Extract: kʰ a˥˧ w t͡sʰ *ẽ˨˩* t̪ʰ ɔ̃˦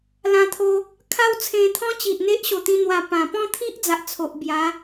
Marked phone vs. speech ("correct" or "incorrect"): incorrect